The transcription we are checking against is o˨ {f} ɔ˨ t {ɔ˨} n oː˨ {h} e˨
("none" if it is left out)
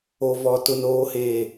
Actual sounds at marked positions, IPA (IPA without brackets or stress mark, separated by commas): v, ʊ˨, h